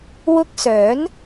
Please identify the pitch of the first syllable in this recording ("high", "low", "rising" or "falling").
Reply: high